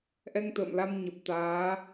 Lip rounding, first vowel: unrounded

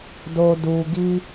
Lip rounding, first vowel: rounded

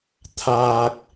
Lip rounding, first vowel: unrounded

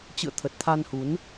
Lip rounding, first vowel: unrounded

